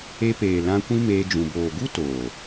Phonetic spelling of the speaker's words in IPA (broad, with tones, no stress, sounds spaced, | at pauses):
e˧ p eː˨ l ã˧ kʷ ĩ˦ m eː˧ d͡ʒ ũ˨ b oː˨ ɡ u˦ t oː˨